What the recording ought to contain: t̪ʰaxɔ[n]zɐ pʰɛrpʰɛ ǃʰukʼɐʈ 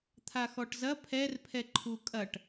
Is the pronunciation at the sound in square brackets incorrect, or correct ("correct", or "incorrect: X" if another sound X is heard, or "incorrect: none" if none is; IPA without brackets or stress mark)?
incorrect: ʈ